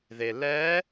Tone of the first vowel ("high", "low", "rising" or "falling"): low